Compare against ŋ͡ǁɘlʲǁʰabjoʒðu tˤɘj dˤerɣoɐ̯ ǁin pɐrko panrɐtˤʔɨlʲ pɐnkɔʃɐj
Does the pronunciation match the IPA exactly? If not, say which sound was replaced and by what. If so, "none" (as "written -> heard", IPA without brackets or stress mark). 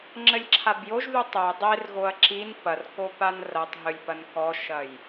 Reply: ʔ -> ɦ